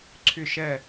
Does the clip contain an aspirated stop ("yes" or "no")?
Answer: yes